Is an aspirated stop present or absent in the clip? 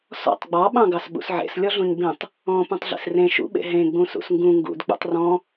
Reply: absent